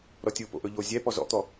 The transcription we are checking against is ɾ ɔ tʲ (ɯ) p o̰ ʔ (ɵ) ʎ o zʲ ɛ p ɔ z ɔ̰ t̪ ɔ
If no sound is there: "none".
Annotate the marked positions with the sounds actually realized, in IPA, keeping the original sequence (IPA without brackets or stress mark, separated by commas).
ɯ, ɵ